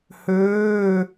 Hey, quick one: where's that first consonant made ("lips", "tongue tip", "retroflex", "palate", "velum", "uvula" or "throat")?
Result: throat